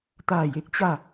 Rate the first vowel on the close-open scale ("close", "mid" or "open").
open